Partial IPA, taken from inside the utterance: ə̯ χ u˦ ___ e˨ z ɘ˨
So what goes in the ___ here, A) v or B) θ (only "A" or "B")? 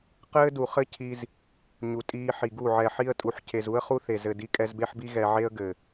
B